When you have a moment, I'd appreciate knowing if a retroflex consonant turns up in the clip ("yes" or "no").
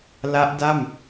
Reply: no